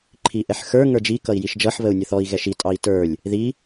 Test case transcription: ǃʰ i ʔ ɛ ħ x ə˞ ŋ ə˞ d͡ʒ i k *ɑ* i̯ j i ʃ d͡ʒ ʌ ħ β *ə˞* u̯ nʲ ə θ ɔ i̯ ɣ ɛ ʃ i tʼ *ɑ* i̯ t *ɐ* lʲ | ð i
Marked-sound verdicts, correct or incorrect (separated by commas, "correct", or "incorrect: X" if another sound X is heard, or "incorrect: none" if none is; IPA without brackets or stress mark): incorrect: ʌ, incorrect: ə, correct, incorrect: ə˞